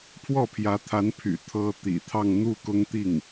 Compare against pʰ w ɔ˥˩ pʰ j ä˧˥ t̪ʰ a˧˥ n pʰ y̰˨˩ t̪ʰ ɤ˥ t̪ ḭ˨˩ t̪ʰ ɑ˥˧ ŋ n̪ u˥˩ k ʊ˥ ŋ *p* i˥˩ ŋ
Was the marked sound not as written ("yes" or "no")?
yes